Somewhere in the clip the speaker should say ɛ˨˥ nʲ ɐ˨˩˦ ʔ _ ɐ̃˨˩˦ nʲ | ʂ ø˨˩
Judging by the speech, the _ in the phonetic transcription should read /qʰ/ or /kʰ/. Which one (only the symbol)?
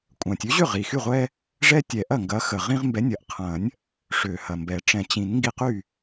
qʰ